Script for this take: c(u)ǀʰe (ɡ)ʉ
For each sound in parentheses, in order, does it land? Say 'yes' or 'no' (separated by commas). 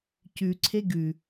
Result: no, yes